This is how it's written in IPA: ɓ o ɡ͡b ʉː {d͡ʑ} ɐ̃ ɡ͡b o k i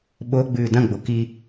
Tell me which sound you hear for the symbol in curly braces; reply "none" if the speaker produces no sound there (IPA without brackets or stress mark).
d